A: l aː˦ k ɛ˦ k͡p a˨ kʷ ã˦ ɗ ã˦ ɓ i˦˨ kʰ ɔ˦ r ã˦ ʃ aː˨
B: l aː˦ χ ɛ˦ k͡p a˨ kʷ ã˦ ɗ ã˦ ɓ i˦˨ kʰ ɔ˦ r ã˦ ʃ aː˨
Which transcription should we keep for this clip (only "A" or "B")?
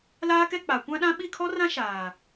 A